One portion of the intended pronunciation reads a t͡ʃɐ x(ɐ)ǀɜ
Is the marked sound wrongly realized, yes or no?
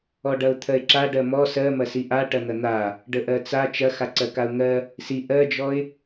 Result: yes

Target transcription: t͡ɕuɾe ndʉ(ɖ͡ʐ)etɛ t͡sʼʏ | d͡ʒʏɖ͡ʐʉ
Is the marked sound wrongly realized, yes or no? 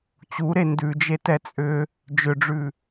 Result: yes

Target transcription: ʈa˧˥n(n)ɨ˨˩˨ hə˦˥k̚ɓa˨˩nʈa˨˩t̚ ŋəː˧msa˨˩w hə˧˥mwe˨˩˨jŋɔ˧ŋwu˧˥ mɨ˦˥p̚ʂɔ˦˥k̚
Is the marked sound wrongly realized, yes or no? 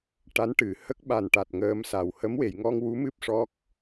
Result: yes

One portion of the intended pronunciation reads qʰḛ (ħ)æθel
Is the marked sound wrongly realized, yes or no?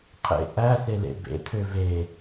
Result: yes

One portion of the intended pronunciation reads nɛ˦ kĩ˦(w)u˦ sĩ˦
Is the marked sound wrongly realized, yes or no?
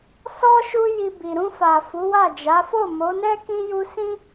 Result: yes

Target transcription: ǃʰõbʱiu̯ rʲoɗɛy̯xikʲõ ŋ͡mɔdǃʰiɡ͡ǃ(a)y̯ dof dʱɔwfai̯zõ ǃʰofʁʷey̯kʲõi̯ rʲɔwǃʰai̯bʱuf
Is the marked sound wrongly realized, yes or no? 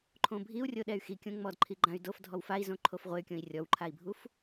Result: yes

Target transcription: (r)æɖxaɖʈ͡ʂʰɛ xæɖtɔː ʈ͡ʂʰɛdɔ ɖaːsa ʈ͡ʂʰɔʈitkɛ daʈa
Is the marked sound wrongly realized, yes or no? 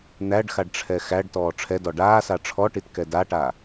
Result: yes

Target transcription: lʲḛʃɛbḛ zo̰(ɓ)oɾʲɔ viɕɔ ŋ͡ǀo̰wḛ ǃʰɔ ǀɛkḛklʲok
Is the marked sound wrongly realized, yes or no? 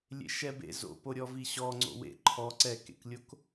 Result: yes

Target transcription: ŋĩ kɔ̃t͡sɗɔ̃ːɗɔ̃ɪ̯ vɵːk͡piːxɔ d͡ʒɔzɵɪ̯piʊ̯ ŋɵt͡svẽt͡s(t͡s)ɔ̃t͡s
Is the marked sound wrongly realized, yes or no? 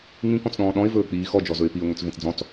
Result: yes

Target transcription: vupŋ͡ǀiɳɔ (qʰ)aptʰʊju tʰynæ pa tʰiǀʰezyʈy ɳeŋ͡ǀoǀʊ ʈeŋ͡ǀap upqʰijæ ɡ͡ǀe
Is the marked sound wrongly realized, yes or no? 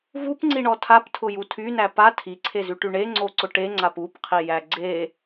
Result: yes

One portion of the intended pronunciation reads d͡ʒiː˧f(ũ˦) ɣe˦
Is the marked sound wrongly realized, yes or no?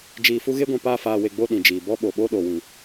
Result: yes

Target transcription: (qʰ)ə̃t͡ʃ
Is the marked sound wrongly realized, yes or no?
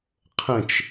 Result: no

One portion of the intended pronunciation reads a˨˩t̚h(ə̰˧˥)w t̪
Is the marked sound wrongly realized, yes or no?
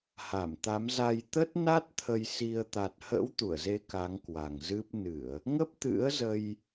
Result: no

